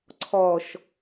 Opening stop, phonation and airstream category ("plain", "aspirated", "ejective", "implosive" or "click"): click